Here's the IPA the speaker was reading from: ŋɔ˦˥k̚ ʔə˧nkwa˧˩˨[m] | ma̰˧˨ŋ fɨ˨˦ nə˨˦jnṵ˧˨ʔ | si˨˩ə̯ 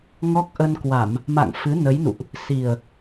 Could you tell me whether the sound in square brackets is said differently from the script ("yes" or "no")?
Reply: no